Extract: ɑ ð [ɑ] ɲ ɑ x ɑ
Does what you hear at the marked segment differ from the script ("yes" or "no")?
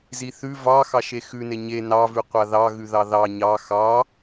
no